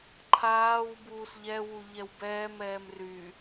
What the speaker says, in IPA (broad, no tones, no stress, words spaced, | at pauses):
ǃʰaːw buːsʎɛwu ʎɛwbɛːmɛːm ry